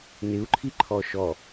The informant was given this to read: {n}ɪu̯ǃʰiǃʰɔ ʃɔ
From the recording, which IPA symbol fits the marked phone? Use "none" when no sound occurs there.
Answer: n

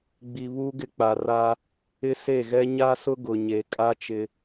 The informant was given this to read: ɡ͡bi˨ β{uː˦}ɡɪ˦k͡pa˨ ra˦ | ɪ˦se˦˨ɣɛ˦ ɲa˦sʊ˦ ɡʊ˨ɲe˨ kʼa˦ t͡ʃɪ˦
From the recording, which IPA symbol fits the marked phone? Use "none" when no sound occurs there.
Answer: uː˦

